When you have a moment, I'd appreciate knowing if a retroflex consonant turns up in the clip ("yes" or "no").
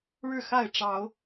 yes